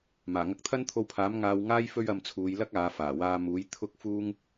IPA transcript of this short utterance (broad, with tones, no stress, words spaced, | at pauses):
maː˨˩ŋɐ˧k̚t̪ʰɐ˥n t̪ʰo˧wpʰaː˨˥m ŋaː˧wŋaː˥j fɵ˥ɥ ɐ˧mt͡sʰuː˨˧jlɐ˥k̚ aː˨˧faː˨˩waː˧ muː˨˥j t̪ʰʊ˥k̚fuː˥ŋ